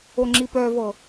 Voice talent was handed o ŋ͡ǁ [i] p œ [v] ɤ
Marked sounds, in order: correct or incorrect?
correct, correct

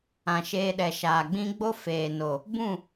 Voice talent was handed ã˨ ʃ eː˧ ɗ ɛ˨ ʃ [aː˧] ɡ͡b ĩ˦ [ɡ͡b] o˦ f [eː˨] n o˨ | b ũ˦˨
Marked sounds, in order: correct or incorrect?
incorrect: aː˨, correct, correct

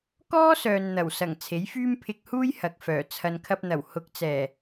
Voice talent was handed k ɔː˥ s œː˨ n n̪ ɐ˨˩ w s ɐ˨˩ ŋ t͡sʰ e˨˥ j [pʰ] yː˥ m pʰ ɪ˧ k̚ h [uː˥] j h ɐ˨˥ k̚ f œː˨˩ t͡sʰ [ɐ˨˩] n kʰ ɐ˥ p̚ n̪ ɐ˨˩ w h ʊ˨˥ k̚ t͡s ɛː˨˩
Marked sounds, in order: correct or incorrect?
incorrect: f, correct, incorrect: ɐ˧

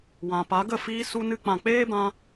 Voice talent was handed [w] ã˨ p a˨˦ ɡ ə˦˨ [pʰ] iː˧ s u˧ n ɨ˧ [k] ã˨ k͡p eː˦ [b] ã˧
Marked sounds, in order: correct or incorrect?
correct, incorrect: f, incorrect: k͡p, correct

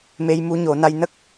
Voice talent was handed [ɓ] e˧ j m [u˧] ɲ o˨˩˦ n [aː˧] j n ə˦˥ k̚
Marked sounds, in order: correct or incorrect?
incorrect: m, incorrect: u˧˥, incorrect: a˧

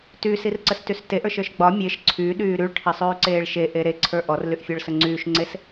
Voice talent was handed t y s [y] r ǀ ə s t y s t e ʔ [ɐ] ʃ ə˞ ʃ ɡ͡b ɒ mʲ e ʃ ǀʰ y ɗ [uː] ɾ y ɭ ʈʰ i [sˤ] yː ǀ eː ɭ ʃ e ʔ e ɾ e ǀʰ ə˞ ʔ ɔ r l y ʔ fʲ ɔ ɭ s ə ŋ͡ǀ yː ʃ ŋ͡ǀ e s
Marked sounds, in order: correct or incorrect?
incorrect: i, incorrect: ə˞, incorrect: yː, correct

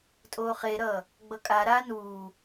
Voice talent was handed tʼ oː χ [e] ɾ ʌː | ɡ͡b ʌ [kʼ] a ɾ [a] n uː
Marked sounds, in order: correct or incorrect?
correct, correct, incorrect: aː

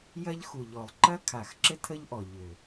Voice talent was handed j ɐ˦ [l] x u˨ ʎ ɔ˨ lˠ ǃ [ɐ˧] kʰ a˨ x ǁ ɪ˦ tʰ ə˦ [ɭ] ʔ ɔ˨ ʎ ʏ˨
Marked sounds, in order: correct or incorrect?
incorrect: ʎ, incorrect: ɐ˦, incorrect: ʎ

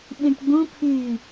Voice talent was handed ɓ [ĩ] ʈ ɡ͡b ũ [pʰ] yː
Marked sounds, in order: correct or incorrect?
correct, correct

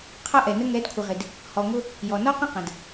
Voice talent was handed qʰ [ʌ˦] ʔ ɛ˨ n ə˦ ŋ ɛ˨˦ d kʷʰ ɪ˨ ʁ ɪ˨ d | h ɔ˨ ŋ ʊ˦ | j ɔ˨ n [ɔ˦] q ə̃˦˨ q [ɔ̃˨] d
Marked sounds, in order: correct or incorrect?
correct, correct, incorrect: ə̃˨

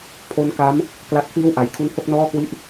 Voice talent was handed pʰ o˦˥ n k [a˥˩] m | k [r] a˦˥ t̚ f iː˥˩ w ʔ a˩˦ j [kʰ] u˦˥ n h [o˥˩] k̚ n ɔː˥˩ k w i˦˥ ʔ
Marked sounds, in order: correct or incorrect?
incorrect: a˦˥, incorrect: l, correct, correct

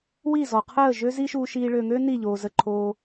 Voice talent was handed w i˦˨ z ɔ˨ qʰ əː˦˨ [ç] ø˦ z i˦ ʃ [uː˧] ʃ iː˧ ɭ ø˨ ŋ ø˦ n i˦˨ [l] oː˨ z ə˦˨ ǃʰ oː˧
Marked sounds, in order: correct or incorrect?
incorrect: ʒ, correct, incorrect: ʎ

